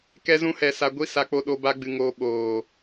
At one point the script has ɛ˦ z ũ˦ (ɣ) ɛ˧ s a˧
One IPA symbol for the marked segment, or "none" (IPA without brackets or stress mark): h